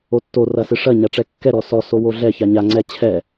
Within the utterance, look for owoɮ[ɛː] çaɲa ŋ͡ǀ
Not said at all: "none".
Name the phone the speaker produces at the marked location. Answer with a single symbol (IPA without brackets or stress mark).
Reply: ɛ